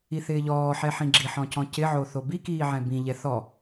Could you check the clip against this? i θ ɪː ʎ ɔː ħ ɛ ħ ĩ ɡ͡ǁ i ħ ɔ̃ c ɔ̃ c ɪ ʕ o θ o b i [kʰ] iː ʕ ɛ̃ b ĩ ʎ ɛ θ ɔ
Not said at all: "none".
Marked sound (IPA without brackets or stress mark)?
k